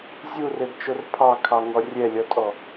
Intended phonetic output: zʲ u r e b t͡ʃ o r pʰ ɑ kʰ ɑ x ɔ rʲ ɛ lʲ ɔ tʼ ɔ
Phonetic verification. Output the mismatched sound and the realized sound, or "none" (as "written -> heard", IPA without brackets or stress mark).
x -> ŋ